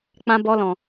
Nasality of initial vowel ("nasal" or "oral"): nasal